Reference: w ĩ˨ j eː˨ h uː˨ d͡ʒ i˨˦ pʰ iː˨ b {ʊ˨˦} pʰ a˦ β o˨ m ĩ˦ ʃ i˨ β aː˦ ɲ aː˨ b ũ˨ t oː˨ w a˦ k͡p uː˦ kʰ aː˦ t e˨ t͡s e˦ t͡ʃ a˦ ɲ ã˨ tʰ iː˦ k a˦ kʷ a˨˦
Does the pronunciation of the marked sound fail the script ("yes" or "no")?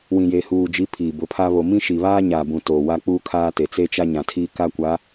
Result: no